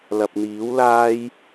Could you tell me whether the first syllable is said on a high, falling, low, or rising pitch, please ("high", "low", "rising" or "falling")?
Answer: low